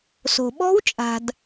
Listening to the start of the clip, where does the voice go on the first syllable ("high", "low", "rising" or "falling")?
low